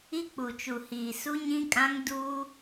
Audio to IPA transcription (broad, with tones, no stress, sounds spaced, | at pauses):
i˦ k͡p u˨ t͡ʃ u˨ h iː˨ s u˦ ɲ ĩ˦ kʼ ã˦ ŋ d uː˦